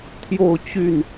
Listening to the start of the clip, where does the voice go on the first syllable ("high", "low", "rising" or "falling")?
falling